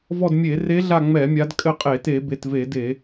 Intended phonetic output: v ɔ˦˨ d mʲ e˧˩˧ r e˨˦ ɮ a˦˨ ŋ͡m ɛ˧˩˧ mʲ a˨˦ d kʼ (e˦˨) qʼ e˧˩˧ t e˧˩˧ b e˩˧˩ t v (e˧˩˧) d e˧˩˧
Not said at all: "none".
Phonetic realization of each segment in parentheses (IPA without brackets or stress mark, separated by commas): ɘ˦˨, e˧˩˧